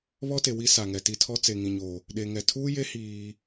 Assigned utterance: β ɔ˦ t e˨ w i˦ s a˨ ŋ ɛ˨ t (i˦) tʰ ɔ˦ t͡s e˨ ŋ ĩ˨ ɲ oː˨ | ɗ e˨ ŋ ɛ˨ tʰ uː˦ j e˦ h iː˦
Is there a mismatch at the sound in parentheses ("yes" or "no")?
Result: no